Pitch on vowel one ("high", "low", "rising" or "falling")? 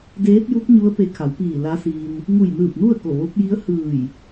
rising